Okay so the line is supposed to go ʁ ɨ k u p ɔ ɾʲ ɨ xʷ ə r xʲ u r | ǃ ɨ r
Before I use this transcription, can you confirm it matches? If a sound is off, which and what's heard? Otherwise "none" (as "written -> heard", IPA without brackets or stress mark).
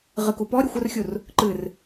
none